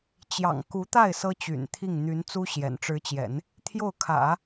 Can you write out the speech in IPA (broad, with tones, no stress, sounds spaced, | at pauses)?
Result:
t͡ɕ j ɑ̰˨˩ ŋ k u˧˥ t̪ a˥˩ ɪ̯ s ɤ˥ t͡ɕ y̰˨˩ n t̪ʰ i˥˩ ŋ n̪ y˧˥ n t͡s u˥ ɕ j ɛ̰˨˩ n ʈ͡ʂ ɻ̩˧˥ t͡ɕ j ɛ̰˨˩˦ n | t̪ʰ j o˥˩ ʊ̯ kʰ ä̰˨˩˦